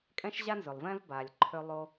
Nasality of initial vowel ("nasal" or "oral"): nasal